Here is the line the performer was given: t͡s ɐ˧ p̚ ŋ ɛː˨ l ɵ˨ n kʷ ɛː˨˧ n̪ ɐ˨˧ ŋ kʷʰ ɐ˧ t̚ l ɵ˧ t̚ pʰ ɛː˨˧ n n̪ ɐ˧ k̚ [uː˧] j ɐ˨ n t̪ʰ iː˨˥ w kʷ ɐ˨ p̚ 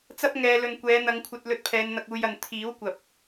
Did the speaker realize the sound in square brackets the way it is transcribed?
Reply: yes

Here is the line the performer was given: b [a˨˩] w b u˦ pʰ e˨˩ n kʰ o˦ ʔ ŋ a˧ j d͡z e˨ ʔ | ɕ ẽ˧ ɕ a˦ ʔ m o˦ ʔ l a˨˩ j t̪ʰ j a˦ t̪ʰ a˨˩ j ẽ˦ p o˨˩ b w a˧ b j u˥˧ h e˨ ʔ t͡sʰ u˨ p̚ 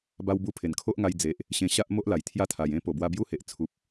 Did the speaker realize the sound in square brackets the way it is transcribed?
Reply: no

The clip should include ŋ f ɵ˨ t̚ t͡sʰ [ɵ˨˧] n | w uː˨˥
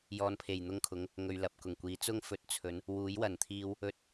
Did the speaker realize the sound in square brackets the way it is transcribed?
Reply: yes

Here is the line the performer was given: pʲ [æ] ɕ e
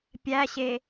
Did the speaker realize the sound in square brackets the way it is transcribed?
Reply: yes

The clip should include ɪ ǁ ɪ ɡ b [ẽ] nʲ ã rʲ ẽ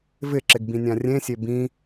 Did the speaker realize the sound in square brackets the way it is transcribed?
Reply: no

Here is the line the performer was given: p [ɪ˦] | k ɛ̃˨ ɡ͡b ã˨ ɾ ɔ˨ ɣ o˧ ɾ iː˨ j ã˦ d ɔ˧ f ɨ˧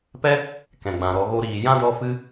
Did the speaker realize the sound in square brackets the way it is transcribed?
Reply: no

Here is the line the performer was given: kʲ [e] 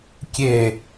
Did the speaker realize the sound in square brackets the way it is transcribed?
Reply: yes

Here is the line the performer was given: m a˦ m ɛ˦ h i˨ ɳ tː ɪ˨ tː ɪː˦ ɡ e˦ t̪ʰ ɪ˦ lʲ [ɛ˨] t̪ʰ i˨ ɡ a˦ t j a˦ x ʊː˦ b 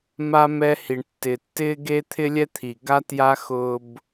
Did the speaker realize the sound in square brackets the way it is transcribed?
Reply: no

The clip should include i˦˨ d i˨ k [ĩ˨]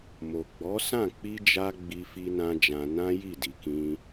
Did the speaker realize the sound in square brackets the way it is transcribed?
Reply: no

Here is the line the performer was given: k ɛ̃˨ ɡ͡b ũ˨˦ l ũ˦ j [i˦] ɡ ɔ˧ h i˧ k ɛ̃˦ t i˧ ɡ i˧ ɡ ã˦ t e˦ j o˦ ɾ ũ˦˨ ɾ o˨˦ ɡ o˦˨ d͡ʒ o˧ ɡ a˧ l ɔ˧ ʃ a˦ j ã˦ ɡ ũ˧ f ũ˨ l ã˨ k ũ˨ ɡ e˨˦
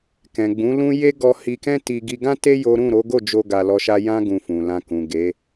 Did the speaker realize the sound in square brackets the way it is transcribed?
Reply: no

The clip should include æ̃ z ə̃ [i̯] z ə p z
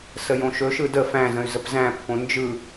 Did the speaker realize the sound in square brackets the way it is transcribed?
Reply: no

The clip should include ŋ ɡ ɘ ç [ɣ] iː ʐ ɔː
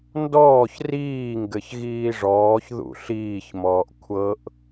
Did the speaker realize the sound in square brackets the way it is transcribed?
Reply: yes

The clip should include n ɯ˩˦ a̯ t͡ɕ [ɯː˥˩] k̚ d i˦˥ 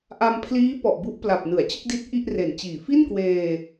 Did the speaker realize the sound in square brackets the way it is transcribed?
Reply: no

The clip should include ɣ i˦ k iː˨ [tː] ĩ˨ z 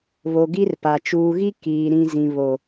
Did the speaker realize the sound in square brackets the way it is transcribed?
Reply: no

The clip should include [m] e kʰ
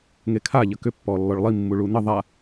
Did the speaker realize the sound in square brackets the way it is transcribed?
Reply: no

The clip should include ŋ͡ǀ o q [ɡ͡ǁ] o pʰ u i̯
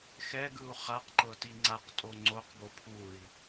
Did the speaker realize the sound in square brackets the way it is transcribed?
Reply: no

